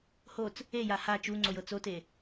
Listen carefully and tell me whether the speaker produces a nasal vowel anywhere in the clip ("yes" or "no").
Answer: no